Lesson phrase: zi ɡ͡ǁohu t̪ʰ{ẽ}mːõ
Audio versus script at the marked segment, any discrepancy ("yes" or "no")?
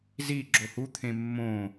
no